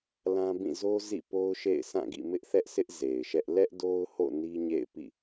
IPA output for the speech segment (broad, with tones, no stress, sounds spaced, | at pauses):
l ã˦ b ĩ˦˨ z o˦ z ḭ˦˨ p o˦ ʊ̯ ʃ ḛ˦˨ ɪ̯ sʰ ã˦˨ ɡ ḭ˦˨ m ɪ˦ ʔ θ ɛ˦ ʔ sʰ ɪ˦ ʔ z e˨ ɪ̯ ʃ ɛ˦ ʔ l ɛ˦ ʔ d o˦ ʊ̯ h o̰˦˨ n i˦ ɲ ḛ˦˨ ɪ̯ p ḭ˦˨